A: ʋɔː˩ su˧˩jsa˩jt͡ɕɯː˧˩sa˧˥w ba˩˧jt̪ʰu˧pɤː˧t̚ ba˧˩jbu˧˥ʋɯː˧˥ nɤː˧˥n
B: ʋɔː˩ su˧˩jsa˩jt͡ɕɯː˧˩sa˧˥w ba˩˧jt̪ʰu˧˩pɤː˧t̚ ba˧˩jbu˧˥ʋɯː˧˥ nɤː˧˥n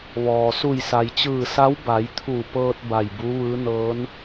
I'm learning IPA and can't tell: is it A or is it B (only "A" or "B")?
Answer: B